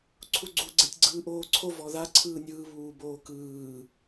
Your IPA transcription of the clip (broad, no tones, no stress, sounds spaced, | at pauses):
ǀʰ u ɡ͡ǀ u ɡ͡ǀ e tʲ ɡ͡ǀ ɯː ʔ oː ǀʰ o v ɔ ð a ǀʰ ɯː nʲ ɯː β uː b oː k ɯː